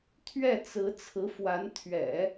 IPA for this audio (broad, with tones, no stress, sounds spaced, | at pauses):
t̪ʰ ɥ ɛ˥˩ t͡s ɹ̩˧˥ t͡sʰ ɹ̩˧˥ f w a˧˥ n t̪ʰ ɥ ɛ̰˨˩˦